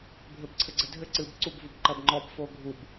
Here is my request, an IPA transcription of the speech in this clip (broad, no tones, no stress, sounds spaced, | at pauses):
bʱ ɘ b ǀʰ ɘ ɡ͡ǀ ɘ dʱ ɘ ǀ ɨ b ǀ u b v u b ǃ ɐ b ŋ͡ǃ ɔ b f o ɡʱ u b